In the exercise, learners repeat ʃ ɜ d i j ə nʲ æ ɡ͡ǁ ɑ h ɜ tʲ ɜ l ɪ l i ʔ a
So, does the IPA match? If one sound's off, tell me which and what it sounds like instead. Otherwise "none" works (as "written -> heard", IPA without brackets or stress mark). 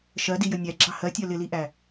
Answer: a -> æ